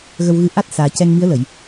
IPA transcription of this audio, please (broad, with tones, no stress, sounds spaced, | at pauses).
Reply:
ɣ ə˧ w ɣ ɨ˧˥ ʔ a˦˥ t̚ s aː˨˩ c ɛ˧ ŋ m i˧˥ ə̯ l ə˨˩˨ j